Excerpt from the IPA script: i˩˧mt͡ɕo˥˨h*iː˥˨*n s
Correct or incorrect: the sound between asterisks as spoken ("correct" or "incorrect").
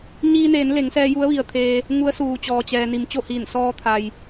incorrect